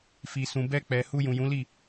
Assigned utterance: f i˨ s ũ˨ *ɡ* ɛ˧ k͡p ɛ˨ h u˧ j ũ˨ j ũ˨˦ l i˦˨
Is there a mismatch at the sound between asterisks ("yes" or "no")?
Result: yes